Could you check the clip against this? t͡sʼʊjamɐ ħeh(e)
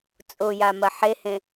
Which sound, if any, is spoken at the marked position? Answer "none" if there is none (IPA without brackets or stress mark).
ẽ